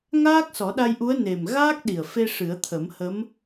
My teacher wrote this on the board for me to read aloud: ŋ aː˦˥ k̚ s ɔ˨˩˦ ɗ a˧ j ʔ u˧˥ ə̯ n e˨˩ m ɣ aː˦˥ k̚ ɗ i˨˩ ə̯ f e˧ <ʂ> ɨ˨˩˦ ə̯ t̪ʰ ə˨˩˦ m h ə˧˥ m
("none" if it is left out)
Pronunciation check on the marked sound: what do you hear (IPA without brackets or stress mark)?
ʂ